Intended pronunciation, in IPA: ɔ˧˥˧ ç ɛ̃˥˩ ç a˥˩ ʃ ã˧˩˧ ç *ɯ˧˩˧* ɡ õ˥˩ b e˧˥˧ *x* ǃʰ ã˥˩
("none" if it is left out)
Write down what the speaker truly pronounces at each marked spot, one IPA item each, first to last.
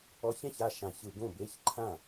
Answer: ɯ˧˩˧, ç

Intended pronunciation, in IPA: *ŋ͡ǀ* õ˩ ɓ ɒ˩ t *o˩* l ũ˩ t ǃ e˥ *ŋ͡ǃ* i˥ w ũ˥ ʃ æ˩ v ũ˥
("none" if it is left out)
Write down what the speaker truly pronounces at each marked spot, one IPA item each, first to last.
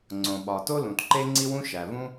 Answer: ŋ͡ǀ, o˥, ŋ͡ǀ

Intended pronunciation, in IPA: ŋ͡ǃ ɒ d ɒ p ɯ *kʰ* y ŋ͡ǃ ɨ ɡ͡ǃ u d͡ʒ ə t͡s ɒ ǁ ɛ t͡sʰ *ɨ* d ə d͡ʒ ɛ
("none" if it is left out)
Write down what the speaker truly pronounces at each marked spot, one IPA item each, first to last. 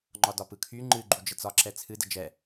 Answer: kʰ, ɨ

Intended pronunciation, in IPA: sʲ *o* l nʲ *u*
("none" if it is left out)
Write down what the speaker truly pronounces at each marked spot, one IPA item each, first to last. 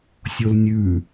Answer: o, ʉ

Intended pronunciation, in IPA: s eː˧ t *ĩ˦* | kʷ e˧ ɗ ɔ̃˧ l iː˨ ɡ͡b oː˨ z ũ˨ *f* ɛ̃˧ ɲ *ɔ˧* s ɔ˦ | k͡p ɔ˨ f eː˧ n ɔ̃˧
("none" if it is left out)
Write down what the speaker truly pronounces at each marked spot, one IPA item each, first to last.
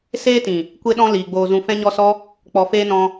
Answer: ĩ˨, f, ɔ˧

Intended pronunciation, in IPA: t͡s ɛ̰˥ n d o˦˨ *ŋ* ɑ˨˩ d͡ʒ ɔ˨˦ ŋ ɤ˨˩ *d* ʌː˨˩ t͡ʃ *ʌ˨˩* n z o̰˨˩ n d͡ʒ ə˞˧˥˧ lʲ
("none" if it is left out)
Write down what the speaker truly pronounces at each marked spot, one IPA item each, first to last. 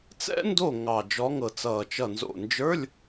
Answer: ŋ, t͡s, ʌ˨˩

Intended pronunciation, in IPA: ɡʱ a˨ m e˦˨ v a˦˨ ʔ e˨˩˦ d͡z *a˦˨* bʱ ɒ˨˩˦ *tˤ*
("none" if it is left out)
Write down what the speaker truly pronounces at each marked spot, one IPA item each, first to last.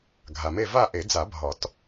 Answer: a˨˩˦, t

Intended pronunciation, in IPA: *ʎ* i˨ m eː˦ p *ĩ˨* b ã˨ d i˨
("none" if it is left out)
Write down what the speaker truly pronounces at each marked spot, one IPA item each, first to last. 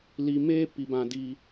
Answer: l, i˨

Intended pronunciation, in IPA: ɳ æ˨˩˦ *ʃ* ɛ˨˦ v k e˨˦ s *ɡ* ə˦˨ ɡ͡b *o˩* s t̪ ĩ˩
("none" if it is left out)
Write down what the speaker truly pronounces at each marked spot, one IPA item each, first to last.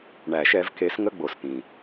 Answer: ʃ, ŋ, o˩

